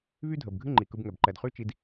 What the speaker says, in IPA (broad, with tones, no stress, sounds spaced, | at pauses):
β y˦ dʱ ə˨ b ɡʱ ɨ˦ ŋ͡ǃ i˨ k ɯ˧ b ŋ ɛ˨ b ǃ ɛ˨ d χ y˦ t͡ʃ i˧ d